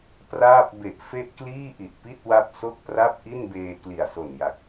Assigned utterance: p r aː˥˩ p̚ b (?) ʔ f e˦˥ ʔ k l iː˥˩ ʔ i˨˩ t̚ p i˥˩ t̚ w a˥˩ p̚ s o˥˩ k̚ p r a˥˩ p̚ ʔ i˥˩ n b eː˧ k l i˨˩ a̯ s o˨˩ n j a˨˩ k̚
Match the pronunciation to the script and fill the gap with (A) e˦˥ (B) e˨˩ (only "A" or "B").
B